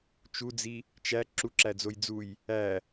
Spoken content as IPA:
t͡ʃ u d͡z i | t͡ʃ æ ǁ u ǁ æ d͡z o j d͡z u j | æ

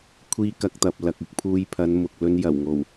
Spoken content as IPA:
kʷʰ iː˥ k ɐ˧ k̚ t̪ ɐ˨ p̚ l ɐ˨ k̚ ɪ˨˥ k̚ pʰ uː˧ j pʰ ɐ˨˧ n m ʊ˨ k̚ l ɵ˧ n j ɐ˨˩ w ŋ o˨˩ w

